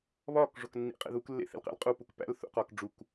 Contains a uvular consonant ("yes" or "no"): yes